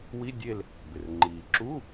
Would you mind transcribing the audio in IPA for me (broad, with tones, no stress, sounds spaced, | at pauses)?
w i˧˥˧ dʲ e˦˨ l | b ɪ˩ r ŋ͡ǃ iː˩ ǁ u˧˥˧